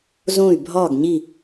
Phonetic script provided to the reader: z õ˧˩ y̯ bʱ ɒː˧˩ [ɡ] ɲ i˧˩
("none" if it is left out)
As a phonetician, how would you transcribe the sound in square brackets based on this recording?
ɡ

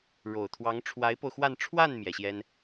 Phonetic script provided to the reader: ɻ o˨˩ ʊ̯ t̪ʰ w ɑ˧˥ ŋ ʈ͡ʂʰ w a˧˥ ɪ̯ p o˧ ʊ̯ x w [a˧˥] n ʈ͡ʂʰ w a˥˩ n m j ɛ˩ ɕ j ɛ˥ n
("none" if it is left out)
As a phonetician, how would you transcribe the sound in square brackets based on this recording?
a˥˧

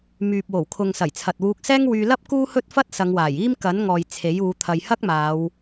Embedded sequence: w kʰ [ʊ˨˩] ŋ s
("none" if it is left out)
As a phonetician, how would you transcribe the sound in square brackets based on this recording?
ʊ˨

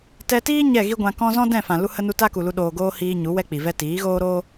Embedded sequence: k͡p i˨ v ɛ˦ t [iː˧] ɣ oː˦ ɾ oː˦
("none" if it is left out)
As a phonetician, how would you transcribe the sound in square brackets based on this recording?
iː˨˦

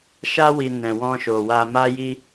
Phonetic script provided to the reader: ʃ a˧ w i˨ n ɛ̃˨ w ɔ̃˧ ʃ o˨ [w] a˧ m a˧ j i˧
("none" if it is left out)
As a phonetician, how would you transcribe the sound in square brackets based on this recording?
w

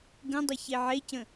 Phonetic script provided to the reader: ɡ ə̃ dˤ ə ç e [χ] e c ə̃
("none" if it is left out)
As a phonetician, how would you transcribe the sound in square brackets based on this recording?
ʕ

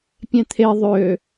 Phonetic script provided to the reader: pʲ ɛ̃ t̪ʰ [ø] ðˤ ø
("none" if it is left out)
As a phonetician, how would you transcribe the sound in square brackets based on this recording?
e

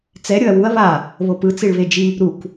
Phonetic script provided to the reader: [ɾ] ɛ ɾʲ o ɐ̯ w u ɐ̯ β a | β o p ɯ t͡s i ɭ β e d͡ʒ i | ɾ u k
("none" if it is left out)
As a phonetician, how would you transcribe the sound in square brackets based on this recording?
t͡s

